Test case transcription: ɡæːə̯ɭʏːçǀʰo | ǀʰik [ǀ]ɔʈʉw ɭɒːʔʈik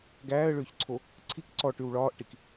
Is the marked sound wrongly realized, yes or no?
no